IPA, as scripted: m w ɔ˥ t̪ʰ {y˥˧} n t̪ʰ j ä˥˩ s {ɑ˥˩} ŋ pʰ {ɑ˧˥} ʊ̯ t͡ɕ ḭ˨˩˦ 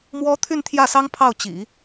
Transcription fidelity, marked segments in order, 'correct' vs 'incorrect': correct, incorrect, incorrect

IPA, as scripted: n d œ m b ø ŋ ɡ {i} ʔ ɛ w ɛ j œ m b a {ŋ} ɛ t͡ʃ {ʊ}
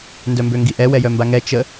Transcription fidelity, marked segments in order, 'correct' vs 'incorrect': correct, correct, incorrect

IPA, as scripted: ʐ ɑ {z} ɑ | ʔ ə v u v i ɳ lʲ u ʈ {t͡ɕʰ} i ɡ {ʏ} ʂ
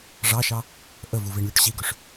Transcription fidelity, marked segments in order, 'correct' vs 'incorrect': incorrect, incorrect, correct

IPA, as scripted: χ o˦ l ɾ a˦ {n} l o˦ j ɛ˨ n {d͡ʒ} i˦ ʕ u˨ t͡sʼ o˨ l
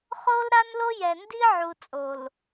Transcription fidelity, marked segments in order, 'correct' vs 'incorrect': correct, incorrect

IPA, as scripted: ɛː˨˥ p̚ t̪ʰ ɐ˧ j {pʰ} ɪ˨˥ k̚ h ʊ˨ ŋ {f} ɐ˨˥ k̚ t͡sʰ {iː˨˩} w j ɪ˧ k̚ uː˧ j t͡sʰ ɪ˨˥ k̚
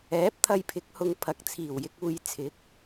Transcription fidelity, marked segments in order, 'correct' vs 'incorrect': correct, incorrect, correct

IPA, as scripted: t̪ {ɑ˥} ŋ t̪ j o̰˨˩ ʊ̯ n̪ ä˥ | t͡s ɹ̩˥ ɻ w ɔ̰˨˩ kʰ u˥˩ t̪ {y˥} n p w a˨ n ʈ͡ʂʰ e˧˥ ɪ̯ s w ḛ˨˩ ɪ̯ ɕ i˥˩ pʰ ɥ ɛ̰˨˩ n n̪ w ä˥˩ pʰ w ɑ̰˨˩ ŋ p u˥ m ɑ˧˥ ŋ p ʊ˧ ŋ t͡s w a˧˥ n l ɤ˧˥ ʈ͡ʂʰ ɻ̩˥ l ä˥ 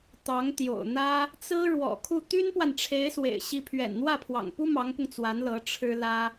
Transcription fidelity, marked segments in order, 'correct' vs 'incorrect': incorrect, correct

